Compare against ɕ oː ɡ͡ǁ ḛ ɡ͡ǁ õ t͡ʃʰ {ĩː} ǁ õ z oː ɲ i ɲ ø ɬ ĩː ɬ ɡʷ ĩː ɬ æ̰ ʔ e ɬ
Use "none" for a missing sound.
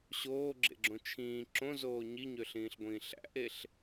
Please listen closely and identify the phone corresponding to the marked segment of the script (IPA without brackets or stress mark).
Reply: ĩː